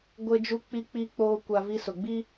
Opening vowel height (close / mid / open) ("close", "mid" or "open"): mid